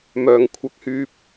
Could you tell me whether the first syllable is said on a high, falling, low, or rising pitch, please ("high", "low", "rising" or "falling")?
low